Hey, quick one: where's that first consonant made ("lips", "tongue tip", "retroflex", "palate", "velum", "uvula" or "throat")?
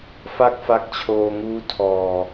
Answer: lips